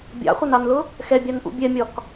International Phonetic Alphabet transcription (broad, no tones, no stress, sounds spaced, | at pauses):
bʲ ɑ̰ χʷ ʌ n ɑ n l ʊ | x ɛ bʲ ɑ n ʔ ṵ bʲ ɛ mʲ ɒ k